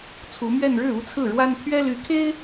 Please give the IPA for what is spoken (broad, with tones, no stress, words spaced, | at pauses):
t͡sʰu˧˥mɥɛ˥˧n ɻɻ̩˥˩u˥t͡sʰɹ̩˥˩ɻwa˥n t̪ʰɥɛ˥ly˧˥kʰe˥ɪ̯